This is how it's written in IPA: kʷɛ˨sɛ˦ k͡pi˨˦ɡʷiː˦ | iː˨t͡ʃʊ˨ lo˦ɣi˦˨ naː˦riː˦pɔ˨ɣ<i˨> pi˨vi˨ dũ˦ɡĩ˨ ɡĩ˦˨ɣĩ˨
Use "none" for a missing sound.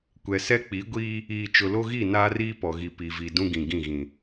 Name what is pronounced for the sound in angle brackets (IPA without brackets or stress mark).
i˨